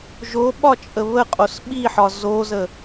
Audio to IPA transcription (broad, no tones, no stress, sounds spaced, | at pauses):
ʒ o ɓ ɒ t͡ʃʼ ə β ə qʼ o s ɓ i ħ ɒ z o z ə